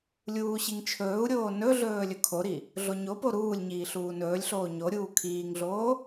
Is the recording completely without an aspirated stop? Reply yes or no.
no